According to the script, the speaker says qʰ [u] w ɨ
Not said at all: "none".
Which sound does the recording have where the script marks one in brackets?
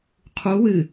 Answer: u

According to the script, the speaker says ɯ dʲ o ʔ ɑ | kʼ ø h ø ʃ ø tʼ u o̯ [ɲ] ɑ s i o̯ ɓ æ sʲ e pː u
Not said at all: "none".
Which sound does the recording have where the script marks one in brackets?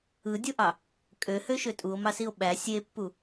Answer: m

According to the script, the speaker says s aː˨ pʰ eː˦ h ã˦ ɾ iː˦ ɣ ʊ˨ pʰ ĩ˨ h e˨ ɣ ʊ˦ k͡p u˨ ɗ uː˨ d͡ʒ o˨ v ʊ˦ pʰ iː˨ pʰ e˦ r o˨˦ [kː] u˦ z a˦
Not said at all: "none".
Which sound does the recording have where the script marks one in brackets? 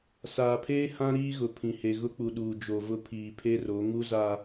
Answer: ŋ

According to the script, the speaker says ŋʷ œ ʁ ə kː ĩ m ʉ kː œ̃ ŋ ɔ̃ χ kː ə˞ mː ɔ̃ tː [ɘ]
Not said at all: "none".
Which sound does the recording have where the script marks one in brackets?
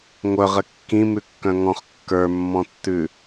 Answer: ʉ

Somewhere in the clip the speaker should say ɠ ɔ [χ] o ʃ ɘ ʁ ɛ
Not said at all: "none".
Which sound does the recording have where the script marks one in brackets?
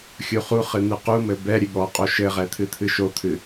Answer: qʼ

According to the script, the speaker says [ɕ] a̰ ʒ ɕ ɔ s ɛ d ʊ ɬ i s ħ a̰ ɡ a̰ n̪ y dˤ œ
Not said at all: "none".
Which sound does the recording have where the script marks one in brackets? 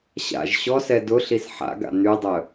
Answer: ɕ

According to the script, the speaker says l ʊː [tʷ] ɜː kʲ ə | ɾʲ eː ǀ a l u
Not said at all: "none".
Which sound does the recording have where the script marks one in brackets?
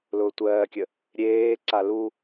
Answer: tʷ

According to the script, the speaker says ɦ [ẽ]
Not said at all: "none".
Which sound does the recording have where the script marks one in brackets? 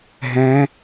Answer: ɛ̃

